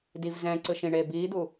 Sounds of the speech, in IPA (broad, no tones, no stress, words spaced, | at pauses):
div zɛ̃ ǀɯʃĩɳeː biːd̪u